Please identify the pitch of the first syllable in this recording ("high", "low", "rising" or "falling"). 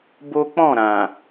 high